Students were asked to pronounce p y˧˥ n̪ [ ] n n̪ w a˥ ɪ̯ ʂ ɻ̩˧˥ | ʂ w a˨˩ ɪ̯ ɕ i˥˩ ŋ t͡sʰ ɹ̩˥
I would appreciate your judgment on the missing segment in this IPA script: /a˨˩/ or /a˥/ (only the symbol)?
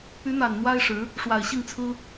a˨˩